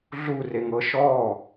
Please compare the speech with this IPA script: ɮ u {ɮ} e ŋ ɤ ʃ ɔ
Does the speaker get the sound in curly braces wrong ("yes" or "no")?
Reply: yes